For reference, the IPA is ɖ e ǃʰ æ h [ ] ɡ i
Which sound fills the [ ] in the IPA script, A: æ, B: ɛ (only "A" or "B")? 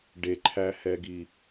B